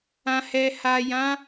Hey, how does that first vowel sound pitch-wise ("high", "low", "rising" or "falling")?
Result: low